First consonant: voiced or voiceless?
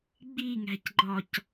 voiced